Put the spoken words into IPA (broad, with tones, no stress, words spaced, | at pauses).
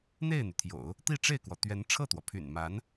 n̪e˥˩ɪ̯n̪y˩t̪ʰjo̰˨˩˦ʊ̯ | t̪i˥˧ ʈ͡ʂe˥˩ɪ̯kwɔ˩t̪ɥɛ˧˥n ʈ͡ʂʰɤ˥˩t̪wɔ˩pʰy̰˨˩nma˧˥n